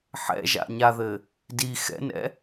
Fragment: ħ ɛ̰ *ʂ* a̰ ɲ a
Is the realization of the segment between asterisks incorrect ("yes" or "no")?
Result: yes